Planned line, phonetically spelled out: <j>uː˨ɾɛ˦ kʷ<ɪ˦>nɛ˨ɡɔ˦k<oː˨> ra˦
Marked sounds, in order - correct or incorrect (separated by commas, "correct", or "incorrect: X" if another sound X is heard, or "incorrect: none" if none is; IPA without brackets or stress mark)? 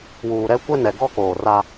incorrect: w, incorrect: ɛ˦, correct